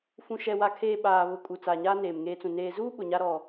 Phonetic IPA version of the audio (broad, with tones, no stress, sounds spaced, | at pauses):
f ũ˨ ʃ ɛ˨ w a˨ kʰ eː˨ ɓ aː˨ β ʊ˨ kʼ u˨ t͡s aː˨ ɲ aː˦ n eː˨ m ŋ eː˦ t͡s ũ˨ n eː˨ z uː˦ ɓ ʊ˨ ɲ a˦ ɾ ɔ˨